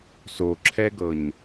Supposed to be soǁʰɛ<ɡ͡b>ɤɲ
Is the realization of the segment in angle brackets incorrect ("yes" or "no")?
yes